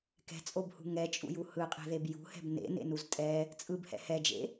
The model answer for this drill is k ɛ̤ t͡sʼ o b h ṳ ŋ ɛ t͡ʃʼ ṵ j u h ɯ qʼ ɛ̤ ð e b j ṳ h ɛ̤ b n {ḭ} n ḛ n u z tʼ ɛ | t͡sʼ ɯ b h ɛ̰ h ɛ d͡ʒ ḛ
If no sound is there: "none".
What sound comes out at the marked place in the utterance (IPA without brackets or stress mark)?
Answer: ḛ